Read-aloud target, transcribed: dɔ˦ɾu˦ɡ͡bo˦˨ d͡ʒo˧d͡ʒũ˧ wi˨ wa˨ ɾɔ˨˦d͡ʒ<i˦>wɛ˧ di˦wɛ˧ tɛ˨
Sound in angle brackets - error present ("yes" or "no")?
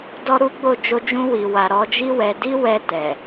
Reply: no